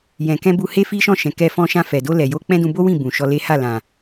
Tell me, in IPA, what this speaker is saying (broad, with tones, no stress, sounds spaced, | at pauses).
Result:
j ɛ̃˨ k ɛ̃˧ b u˧ h e˦ f i˦ ʃ ɔ̃˦˨ ʃ ɛ̃˨ k ɛ˧ f ɔ̃˧ ʃ ã˧ f ɛ˨ d o˧ l ɛ˨ j o˧ k͡p ɛ̃˦ d ũ˧ b o˦ w ĩ˦˨ b ũ˨ ʃ ɔ˧ l e˦ h a˦˨ l ã˨